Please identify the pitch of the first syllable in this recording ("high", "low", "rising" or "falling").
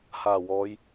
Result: low